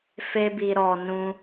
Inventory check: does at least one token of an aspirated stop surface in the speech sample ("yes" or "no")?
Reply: no